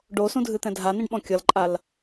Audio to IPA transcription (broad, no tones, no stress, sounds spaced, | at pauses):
ɖ o s ũ dʱ ɨ t̪ ɛ̃ dʱ a n ĩ ɖ ɓ ɔ̃ kʲ ʌ l ǃʼ a l